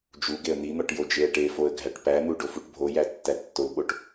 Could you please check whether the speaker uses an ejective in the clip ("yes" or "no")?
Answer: no